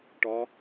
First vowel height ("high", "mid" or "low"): low